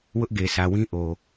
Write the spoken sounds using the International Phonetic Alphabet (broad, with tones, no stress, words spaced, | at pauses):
wʊ˦ʔɡe˨ sʰä˨wĩ˦ ʔo˨